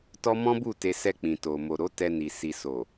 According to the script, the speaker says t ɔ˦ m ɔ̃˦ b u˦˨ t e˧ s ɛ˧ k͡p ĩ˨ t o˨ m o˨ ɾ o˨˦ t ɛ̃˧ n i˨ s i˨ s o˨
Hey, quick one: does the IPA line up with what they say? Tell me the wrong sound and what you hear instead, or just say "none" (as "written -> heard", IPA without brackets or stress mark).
ɛ̃˧ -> ɛ˧